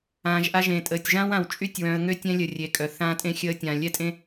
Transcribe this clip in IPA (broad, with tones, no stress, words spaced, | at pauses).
ãː˨ʒʔa˦ʒẽ˨ tʼəː˨tʲʒãː˦wã˨w t͡ʃʼy˦˨tʲwœ̃˨ə̯ŋø˦ tʲɛ̃˦lʲə˨ rʲe˨kʼœ˨ θãː˦ tʼẽ˦xʲəː˦tʲãː˨ lʲɛ˦tʼẽ˦